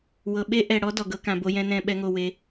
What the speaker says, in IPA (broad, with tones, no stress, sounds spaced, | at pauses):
w ɤ˨ ɓ e˦ ʔ ɛ˨ ɽ ɔ˦ d ɔ˨ ɡ ɤ˦ k ã˨ b o˦ j ɛ̃˦ n ɛ̃˦˨ ɓ ɛ˦ ŋ o˦˨ w e˦